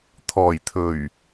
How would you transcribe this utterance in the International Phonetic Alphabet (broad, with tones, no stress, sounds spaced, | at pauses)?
t̪ʰ ɔː˨˩ j t̪ʰ ɵ˨˩ ɥ